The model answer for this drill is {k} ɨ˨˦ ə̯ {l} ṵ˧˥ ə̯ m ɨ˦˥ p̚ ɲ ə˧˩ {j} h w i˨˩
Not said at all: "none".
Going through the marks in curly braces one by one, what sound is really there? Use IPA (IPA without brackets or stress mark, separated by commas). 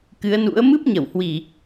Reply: k, n, w